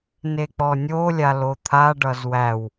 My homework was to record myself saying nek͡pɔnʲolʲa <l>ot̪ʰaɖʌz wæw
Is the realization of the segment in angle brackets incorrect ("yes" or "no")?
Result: no